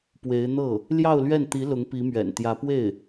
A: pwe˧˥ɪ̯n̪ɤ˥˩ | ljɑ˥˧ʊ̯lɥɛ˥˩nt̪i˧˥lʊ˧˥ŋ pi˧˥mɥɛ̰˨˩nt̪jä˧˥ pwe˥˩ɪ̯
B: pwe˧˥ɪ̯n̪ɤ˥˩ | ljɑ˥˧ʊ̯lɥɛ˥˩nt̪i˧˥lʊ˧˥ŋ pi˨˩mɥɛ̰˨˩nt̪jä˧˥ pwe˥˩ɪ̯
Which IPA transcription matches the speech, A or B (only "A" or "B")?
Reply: A